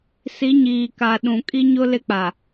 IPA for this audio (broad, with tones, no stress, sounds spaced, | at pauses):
s i˨˦ ɲ iː˨ k a˨ ɗ ũ˨ kʼ i˦ ɲ ʊ˦ l ɪ˦ k͡p a˨